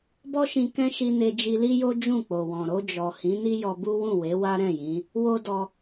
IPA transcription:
b ɔ˦ ʃ ĩ˧ k ɛ̃˦ ʃ i˧ n e˧ d͡ʒ i˧ l i˦ j o˦ d͡ʒ ũ˦˨ k͡p o˨ w ɔ̃˨ ɾ o˧ d͡ʒ ɔ˨ h ĩ˨˦ n i˦ j ɔ˧ b u˦ w ũ˦˨ w e˨˦ w a˦ ɾ ɛ̃˦˨ j ĩ˨˦ | w o˦ d ɔ˧

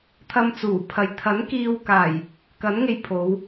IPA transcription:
t̪ʰ ɐ˧ m t͡s uː˨˩ pʰ ɐ˨˧ j t̪ʰ ɐ˨˥ n k iː˧ w k aː˨˩ j | k ɐ˨˥ n ŋ e˧ j pʰ o˨˧ w

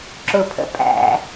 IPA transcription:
ǁ ʊ pʰ ə̰ pʼ æ̰

